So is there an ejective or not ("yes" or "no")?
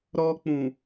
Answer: no